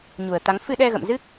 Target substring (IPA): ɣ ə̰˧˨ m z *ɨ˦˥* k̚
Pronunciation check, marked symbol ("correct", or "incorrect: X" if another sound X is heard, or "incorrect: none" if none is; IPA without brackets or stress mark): correct